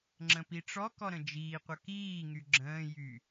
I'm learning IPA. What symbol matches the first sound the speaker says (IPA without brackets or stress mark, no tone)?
ŋ͡ǁ